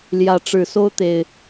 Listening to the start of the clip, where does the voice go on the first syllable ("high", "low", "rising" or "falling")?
rising